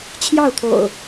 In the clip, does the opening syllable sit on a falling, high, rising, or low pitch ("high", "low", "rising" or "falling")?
falling